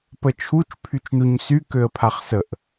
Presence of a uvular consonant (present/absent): present